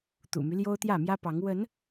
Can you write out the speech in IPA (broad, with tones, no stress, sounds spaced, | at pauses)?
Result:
t̪ ṵ˨˩ m y˦ l j o˦ ʊ̯ t̪ j ä˥˨ m j ä˦ p ɑ˨˦ ŋ w ə˨˦ n